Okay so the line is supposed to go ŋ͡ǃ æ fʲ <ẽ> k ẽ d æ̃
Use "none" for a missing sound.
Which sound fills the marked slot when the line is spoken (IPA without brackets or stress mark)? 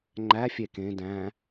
e